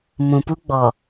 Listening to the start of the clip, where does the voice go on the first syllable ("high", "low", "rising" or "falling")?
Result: low